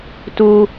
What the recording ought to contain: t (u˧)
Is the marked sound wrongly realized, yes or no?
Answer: no